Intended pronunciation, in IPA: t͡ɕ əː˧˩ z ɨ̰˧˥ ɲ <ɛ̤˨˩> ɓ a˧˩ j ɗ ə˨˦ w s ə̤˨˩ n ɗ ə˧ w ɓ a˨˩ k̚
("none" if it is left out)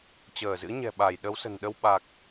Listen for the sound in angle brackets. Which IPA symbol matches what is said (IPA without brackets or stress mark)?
ɛ̤˨˩